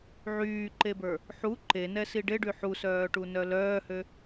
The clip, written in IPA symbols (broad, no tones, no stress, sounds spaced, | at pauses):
ʕ yː ǃ e b ə˞ | ħ u ǃ e n ɛ s i ɖ e ɖ y ħ u s œː ʈ u n œ l œː h ø